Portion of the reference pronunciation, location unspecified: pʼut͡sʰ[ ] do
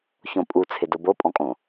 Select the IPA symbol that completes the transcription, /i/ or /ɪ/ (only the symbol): ɪ